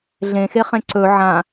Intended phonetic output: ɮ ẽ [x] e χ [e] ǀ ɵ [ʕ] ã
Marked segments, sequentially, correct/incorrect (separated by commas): correct, incorrect, correct